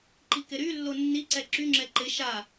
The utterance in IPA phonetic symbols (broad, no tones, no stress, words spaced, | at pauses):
ǃikɪɾylːo nːiǀɛ ǁyŋ͡ǁɛ ǃɪ ʃa